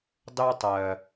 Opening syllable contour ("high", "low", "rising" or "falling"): high